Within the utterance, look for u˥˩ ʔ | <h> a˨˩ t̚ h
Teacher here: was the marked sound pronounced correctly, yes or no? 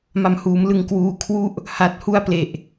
yes